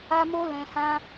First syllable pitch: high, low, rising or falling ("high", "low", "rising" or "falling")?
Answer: high